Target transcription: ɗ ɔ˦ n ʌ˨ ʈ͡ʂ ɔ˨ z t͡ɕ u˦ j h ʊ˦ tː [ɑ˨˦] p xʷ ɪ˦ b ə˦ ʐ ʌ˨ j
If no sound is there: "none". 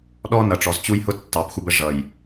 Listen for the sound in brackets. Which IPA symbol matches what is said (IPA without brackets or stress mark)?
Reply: ɑ˨˦